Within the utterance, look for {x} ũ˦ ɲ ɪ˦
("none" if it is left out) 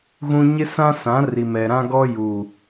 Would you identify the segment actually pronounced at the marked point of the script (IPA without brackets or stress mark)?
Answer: ɣ